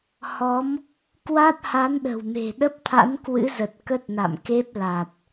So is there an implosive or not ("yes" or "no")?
yes